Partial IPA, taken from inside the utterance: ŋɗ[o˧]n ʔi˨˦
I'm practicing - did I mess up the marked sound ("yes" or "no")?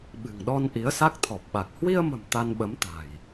yes